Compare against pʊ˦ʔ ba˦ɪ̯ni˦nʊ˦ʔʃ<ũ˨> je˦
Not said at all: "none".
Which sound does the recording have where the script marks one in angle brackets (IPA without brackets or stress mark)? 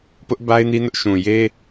ũ˨